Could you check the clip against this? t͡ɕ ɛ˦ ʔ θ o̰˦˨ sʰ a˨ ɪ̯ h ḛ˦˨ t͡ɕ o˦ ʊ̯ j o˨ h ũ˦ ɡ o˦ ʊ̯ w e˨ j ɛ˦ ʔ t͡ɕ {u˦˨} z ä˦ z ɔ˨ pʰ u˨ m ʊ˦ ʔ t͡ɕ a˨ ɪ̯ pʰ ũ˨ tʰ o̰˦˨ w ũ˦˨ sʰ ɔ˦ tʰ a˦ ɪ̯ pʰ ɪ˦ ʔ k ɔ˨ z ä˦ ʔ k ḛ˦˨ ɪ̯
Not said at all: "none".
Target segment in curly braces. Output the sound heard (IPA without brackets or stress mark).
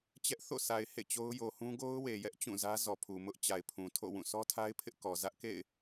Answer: ũ˦˨